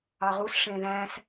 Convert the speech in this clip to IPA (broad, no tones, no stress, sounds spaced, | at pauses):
ɑ ʁ u s ʂ ẽ ð æ̃ s